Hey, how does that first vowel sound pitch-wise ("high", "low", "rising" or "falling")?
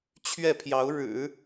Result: falling